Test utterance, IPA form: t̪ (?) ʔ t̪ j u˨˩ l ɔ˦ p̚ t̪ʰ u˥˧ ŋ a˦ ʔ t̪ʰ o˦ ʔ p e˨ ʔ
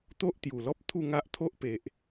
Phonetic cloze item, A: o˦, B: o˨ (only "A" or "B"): A